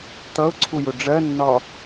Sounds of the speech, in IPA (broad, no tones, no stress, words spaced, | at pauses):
t̪ʌʊ̯ǀʰujʊ ɖ͡ʐɜnːɒ